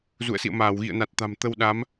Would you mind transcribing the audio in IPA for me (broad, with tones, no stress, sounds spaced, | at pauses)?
z ṵ˧˨ ə̯ s ḭ˧˨ ə̯ m aː˧˩ w ɣ ḭ˧˨ ə̯ n a˨˩ t̚ t̪ a̤˨˩ m t̪ ə˧ w ɗ aː˨˦ m